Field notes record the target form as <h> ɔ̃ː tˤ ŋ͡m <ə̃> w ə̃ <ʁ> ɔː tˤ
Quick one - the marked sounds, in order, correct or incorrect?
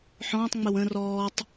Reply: incorrect: ħ, incorrect: ə, incorrect: r

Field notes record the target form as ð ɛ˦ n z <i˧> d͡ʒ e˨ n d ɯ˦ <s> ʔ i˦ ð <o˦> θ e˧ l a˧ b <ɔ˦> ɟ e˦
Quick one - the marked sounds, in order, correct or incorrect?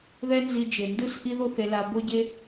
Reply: correct, correct, correct, incorrect: o˦

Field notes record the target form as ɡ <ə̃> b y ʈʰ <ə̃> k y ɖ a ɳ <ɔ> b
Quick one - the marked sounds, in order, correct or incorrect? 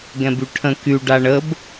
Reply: incorrect: ɛ̃, correct, incorrect: ə

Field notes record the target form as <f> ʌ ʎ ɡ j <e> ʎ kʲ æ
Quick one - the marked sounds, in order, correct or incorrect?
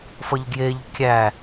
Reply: correct, correct

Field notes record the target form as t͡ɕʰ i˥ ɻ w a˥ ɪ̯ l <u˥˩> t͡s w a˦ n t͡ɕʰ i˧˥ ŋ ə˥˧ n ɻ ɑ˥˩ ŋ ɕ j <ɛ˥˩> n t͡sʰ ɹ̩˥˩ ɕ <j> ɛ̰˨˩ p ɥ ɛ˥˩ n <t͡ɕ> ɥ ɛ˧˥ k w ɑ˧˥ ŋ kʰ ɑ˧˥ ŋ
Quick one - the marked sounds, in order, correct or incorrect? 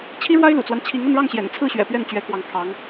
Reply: incorrect: ṵ˨˩, incorrect: ɛ̰˨˩, incorrect: ɥ, correct

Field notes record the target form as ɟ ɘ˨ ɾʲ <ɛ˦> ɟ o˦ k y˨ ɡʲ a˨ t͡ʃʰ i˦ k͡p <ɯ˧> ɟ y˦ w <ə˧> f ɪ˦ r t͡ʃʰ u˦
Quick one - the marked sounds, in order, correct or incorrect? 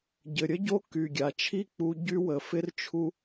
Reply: incorrect: ə˦, incorrect: u˧, incorrect: ə˨

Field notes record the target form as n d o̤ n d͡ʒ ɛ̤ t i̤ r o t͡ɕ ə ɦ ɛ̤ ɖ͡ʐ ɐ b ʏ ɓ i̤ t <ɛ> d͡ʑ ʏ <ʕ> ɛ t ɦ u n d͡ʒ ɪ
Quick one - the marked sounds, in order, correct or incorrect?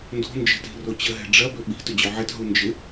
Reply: incorrect: ʏ, correct

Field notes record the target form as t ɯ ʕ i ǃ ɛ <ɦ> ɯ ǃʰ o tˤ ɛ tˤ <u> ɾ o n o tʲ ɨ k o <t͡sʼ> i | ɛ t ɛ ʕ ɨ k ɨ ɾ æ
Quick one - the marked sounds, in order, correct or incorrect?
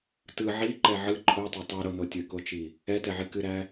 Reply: incorrect: ʕ, incorrect: ɯ, incorrect: t͡ʃ

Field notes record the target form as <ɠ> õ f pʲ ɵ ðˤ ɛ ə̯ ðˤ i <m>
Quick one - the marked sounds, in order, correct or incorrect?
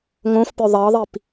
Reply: incorrect: ŋ, incorrect: p

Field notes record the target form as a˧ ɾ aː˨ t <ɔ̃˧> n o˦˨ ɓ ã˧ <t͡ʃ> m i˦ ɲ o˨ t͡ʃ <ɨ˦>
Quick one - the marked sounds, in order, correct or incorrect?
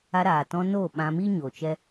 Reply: correct, incorrect: none, incorrect: ɛ˦

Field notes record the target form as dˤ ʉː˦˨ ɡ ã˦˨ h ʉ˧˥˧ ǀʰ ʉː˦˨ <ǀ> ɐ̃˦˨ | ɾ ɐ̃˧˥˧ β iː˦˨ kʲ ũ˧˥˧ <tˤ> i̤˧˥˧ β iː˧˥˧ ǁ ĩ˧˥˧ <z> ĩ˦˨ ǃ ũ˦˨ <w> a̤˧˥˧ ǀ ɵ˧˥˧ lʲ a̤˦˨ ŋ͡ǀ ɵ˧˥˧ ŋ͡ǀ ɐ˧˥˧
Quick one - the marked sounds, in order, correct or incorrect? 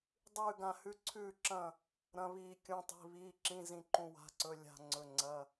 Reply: incorrect: ǁ, correct, correct, correct

